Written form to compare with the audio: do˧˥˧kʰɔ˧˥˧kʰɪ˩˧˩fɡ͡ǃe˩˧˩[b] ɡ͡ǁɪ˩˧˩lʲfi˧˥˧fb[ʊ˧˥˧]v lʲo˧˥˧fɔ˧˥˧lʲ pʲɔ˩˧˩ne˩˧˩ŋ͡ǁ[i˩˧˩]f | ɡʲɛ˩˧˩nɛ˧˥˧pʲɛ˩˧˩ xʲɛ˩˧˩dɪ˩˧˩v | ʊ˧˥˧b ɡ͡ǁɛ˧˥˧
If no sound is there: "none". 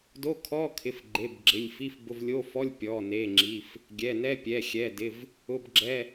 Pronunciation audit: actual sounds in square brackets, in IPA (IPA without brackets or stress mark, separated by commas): b, ʊ˧˥˧, i˩˧˩